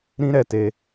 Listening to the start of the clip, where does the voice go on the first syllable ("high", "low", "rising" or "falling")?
high